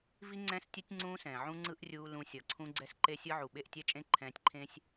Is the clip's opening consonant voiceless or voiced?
voiced